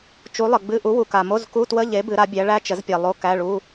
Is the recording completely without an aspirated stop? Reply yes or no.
yes